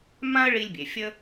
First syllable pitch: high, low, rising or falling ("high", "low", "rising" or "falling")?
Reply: high